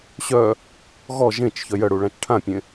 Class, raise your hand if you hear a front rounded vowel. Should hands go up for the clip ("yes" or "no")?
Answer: yes